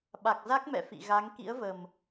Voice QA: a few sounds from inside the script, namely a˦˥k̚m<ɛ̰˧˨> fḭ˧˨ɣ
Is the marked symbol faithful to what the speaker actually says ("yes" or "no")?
yes